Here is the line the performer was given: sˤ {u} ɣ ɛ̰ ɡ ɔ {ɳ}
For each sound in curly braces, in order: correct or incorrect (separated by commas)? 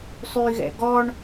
incorrect, correct